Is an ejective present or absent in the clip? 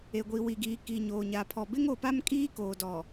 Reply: present